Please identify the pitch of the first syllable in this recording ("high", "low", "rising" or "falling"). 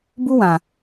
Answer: high